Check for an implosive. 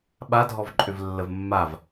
present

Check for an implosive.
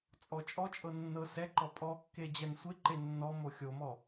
absent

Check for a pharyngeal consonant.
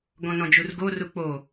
absent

